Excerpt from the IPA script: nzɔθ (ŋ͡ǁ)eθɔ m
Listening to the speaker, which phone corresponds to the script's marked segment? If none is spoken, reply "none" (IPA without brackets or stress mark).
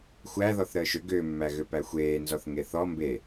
ŋ